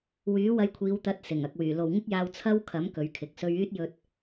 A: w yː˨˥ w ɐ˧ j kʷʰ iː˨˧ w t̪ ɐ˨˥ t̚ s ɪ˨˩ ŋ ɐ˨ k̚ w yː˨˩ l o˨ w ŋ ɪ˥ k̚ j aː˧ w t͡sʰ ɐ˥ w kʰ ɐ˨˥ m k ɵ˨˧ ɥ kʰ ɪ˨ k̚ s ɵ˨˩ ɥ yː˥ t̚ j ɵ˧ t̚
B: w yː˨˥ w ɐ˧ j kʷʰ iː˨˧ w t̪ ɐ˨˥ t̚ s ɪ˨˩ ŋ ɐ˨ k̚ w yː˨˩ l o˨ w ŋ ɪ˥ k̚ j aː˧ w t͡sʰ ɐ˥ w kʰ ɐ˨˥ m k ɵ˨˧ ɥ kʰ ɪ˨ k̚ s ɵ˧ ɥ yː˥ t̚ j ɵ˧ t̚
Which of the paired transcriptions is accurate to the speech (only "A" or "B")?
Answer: B